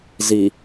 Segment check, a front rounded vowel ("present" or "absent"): absent